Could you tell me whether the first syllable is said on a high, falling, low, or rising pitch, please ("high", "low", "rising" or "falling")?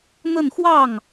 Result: falling